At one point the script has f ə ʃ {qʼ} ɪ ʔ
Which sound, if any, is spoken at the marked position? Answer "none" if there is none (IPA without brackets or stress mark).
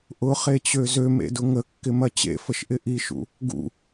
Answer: ʔ